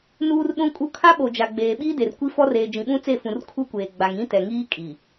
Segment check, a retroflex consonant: absent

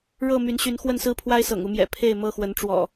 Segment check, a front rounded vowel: present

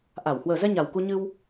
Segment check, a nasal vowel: absent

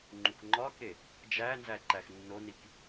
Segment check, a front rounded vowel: absent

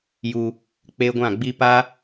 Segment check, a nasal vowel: present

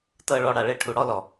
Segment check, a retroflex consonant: present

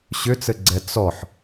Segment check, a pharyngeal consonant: present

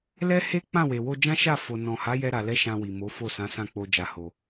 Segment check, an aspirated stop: absent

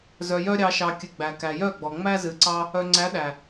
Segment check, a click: present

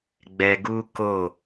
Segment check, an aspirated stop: absent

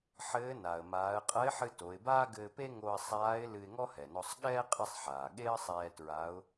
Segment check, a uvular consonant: present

